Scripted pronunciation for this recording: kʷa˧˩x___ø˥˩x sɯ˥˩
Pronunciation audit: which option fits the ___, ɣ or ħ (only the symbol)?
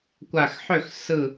ħ